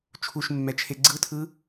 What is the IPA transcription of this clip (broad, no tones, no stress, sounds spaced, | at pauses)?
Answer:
t͡ʃʰ u ʃ mː ɛ t͡ʃʰ e ɡ͡ǀ ɯ tʰ ɯ